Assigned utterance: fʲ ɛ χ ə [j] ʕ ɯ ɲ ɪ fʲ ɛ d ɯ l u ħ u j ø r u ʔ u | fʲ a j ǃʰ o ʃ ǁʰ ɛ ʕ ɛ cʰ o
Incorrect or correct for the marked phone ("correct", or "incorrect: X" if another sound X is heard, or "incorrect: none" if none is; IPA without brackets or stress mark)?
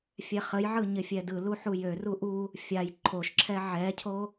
correct